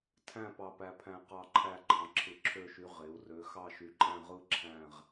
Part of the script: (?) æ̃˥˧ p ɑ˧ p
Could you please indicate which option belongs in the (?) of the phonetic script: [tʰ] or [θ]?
tʰ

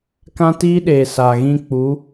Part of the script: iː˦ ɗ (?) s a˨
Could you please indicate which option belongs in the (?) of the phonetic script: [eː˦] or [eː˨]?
eː˨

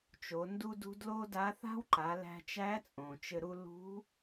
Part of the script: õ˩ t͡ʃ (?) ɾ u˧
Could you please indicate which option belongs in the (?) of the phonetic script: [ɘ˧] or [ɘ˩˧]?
ɘ˧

